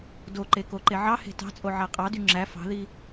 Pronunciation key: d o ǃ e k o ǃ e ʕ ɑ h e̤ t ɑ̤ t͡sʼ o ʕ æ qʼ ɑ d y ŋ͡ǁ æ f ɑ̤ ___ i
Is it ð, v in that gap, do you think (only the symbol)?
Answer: ð